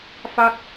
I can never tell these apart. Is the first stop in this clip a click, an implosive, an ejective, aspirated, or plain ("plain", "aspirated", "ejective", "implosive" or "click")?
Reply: plain